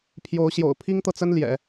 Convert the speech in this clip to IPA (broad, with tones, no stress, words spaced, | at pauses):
pʰjo˧˥ʊ̯ɕjo̰˨˩ʊ̯ pʰi˥ŋt̪ɤ˨t͡sə˥n ljɛ̰˨˩˦